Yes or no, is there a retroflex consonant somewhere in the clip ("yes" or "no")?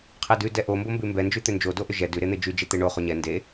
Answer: yes